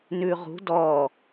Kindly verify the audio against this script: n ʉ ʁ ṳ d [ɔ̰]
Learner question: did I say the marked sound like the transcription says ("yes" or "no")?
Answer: no